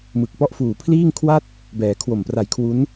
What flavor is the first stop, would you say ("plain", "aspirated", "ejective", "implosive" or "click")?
plain